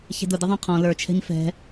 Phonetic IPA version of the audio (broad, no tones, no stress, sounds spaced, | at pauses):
ç ɛ̤ d ʊ d ɪ ðˤ æ̃ qʰ ɔ̃ l ə˞ t͡ʃʰ ɛ̤ ɲ f ɛ̤